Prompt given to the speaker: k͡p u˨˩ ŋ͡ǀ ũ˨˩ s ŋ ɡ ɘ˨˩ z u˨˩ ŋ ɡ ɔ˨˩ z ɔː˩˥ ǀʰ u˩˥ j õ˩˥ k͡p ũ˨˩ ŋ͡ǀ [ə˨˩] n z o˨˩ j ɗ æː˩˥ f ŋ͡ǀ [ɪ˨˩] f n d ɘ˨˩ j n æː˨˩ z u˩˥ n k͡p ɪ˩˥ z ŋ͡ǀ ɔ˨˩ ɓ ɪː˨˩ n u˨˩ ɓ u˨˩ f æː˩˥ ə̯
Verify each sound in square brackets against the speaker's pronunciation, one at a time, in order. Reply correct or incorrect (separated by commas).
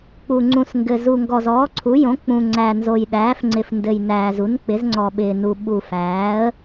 incorrect, correct